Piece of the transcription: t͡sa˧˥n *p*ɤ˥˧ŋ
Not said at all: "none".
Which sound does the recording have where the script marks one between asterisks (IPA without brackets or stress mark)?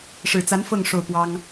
f